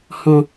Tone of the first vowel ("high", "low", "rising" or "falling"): low